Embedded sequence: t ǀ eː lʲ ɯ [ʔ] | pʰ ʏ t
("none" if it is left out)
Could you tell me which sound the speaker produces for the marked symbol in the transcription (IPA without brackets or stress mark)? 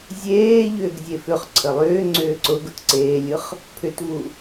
χ